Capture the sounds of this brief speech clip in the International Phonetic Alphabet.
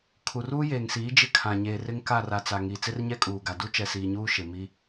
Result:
kʰ u˨ r uː˦ j eː˨ ŋ s iː˨˦ d͡ʒ ɪ˦ kʰ ã˨ ɲ eː˨ r ɪ˦ ŋ k a˦˨ r a˨ t͡s a˨ ŋ i˨ t͡s ɪ˦ r ɲ ɛ˦ kʼ uː˨ ɡ a˨ d u˦ t͡ʃ ɛ˨ s iː˨ ɲ uː˦ ʃ ɪ˨ m i˦

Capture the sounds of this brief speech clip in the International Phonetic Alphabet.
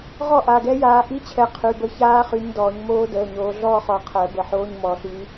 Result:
ʁ ɔ˥˧ ʔ a˩˧˩ ɡ ɛ˦˥ j aː˨˦ ʔ i˧˥˧ t͡ɕʰ ɛ˨˦ qʰ y˩˧˩ b ə˦˥ ç aː˦˥ χ y˨˦ ɲ d ɔː˨˩˦ ɲ m oː˦˥ d əː˩˧˩ ɲ oː˨˦ ɮ ɔː˥˧ χ ɔ˨˦ qʰ əː˨˩˦ b ə˨˩˦ ħ oː˧˥˧ ɲ m ɔ˨˩˦ ɬ y˨˦

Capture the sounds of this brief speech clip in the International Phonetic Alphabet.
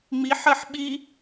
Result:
ŋ͡m i ħ ɜ ħ ɓ i

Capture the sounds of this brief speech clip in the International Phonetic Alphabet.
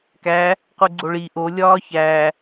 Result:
k æ | q u ɡ͡ǀ o ɭ i ʔ o lʲ ɒː ç æ

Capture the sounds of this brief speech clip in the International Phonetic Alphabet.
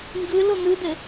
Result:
ŋ ɡ ɯ l o n̪ ɯ d̪ ɘ

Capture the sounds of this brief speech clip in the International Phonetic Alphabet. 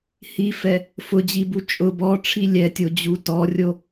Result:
h i f ɛ | f ʊ d͡ʑ i b u t͡ʃʼ ʊ b ɔ ʈ͡ʂʰ i lʲ ɛ tʲ o d͡ʑ u t ɔ rʲ o

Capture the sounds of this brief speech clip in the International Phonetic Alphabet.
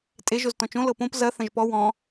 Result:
tʼ e ʒ o z t ɔ̃ t͡ʃ õ l ɤ p õ p z ɐ θ ɐ̃ ʒ p ɔ w ɔ̃

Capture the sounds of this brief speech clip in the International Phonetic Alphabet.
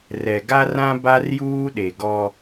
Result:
r ɛ˨ ɡ a˦ r ã˦ b a˦ r j uː˦ ɗ e˨ ɡ ɔ˦

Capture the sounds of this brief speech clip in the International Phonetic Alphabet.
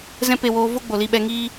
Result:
z ɛ̃˦ p e˧ w oː˧ v o˦ ɡ͡b o˨ l i˧ ɓ ɛ˧ ŋ iː˦

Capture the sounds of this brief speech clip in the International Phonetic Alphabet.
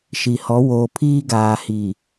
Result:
ʃ i˨ h ɔ˨˦ w oː˨ pʰ iː˦ ɡ aː˨ h i˨

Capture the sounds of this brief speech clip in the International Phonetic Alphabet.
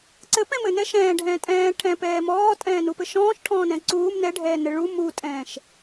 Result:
ǀ ɘ p ɛ̃ m ɘ n ɛ ʃ ɛ̃ː ɖʱ ɛ̃ː tʼ ɛ̃ː ʈʰ ɛ̃ p ɛː m ɔː tʼ ɛ̃ː n u p ɘ ʃ ɔ̃ː ʃ ʈʰ ɔ̃ː n ɛ̃ ǀ uː m n ɛ ɖʱ ɛː n ɘ ɭ u m u tʼ ɛ̃ː ʃ

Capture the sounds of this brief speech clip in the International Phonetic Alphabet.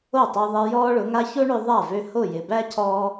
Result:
o˥˩ tˤ ø˧ ðˤ e˧ j ɔː˥ ɭ ʊ˩˥ ŋ a˥ ç o˥ ɳ ø˧ ðˤ a˥˩ v ø˧ h o˥˩ j ɪ˩ b æ˥ cʰ ɔː˧

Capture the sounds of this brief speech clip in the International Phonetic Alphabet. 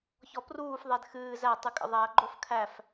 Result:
ç ɔ p r uː f ðˤ ɛ d x ɨː z æ tˤ ɨ kʼ ə̰ ðˤ æ ɡ͡ǃ o f kʰ æ f

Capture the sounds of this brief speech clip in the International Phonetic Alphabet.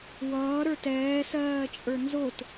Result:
w ʌː ɾ ə˞ t ɛː s ɜː t͡ʃʼ ə˞ n z o t

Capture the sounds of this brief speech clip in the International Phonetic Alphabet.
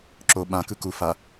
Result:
ǁ o ɓ ã k ɯ k u f a

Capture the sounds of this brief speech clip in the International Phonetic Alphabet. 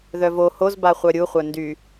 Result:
ð œ v o h o z b a χʷ œ ɾʲ u χʷ œ n d y

